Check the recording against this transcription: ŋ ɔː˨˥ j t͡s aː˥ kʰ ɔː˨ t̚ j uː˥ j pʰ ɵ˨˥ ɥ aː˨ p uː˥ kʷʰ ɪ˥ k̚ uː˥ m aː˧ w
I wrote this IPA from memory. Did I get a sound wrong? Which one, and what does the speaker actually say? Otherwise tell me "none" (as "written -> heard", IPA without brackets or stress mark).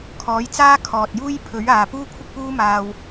ŋ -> kʰ